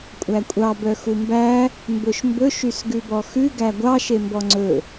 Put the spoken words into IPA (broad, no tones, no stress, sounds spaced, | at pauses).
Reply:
kʷʼ æ kʷʼ ɑ b œ x u m b æ | m b ɵ ʃ m b ɵ ʃ y s ɡ ʉ b ɔ x ʉ ɡ æ ɡʷ ɑ ʃ e m b ɔ ŋ͡ǀ ɵ